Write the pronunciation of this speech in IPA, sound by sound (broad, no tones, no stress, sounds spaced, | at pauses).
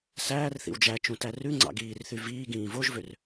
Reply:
s æː r θ ḭ w d͡ʒ æ t͡ʃ ũ t æ r ʉ ŋ͡ǀ ɑ̰ ɡ iː r θ y v iː ɡ ĩː v o ʒ v ø r